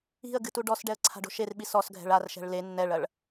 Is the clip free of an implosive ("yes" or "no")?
no